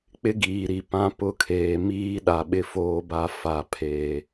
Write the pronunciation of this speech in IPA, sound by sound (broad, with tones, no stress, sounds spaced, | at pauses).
k͡p ɪ˦ ɡ iː˨ ɾ i˨ p ã˦ p ʊ˦˨ kʰ eː˨ m iː˦ ɗ a˨ ɓ ɪ˦ f oː˦ b a˦ f a˨ pʰ eː˨